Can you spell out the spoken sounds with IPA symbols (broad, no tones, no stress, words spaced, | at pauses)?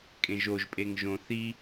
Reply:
kʼẽʒoʒ pʼeŋʒõ θi